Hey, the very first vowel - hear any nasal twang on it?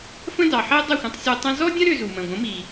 yes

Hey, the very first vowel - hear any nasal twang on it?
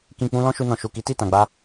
yes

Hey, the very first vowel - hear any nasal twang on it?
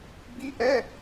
no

